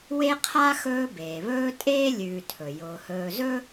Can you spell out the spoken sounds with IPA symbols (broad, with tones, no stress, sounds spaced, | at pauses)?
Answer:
w e˥ qʰ a˥ x ɵː˦ b eː˩ β ɵː˦ tʼ eː˥ lʲ ʉː˨ tʰ ɵ˩ j ʊː˩ h ɵː˨ z ɵ˥